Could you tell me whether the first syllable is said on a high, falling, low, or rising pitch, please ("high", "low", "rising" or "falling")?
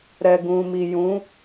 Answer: low